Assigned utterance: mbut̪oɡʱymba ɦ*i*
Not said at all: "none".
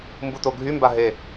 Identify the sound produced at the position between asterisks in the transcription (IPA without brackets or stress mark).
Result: e